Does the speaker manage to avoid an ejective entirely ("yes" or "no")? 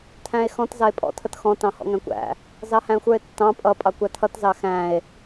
no